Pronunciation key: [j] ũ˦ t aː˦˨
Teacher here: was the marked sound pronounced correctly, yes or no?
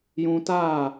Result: yes